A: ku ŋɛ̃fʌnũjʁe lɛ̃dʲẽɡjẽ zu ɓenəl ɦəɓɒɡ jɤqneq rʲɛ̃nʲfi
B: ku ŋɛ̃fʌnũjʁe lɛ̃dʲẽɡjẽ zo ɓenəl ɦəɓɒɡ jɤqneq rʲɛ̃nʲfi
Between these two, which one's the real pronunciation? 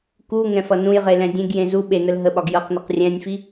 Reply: A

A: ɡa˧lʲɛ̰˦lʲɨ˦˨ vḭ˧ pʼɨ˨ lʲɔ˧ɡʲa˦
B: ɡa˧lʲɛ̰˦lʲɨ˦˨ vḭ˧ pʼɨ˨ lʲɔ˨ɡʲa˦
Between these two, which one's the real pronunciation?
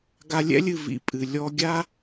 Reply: A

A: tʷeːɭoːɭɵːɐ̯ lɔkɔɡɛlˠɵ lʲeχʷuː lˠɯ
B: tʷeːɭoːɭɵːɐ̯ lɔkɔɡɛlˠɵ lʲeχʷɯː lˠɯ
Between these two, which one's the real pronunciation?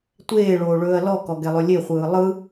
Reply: B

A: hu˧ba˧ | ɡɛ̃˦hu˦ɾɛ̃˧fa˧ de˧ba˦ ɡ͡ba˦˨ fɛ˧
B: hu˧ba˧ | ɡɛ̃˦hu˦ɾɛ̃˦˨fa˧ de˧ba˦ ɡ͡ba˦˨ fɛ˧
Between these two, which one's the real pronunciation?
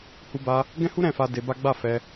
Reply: B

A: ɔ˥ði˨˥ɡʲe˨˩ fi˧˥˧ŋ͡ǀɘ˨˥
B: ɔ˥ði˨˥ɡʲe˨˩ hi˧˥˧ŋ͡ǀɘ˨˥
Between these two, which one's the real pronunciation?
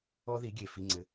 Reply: A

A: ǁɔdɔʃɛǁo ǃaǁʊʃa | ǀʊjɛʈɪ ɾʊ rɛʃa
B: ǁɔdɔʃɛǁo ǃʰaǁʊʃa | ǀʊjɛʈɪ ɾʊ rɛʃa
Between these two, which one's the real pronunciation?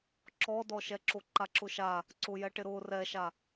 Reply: A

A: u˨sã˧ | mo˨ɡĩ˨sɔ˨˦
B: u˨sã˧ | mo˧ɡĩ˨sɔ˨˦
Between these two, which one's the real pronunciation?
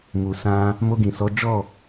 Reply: B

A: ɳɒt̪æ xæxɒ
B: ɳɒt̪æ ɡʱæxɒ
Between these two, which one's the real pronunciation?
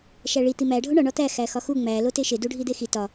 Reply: A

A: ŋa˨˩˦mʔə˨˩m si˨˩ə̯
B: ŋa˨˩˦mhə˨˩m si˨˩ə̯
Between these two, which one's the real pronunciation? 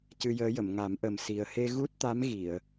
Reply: A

